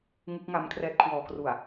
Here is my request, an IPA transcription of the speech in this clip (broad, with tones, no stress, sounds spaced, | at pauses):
ŋ ɯ˦˥ k̚ ŋ a˦˥ m kʰ r ɛː˦˥ t̚ kʰ w ɔː˩˦ k r u˨˩ a̯